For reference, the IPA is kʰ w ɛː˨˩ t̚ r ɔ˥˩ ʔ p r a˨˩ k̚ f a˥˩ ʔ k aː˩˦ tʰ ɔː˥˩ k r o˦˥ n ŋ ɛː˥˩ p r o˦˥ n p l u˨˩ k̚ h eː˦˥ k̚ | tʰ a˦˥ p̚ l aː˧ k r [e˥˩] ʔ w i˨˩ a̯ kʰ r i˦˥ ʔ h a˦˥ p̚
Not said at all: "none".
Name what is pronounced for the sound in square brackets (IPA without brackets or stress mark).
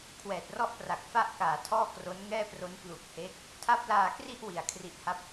i˥˩